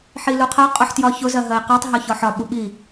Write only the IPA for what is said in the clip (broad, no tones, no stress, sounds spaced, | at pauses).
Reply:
ħ i l u qʰ ɜ qʼ ʊ ħ t j ɒ ç ʊ z ɜ ɦ ɜ i̯ q ɒ tˤ ɦ ɒ ç ɒ ħ ɒ ɓ u ɓ i